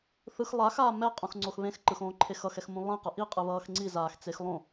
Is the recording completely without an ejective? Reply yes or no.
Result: no